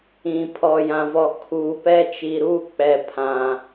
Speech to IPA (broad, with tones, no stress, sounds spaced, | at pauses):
ĩ˨ pʰ ɔ˨ j ã˨ v ɔ˨ kʰ u˨˦ p ɛ˦ t͡ʃ i˨ ɾ u˦˨ k͡p ɛ˨ pʰ ã˨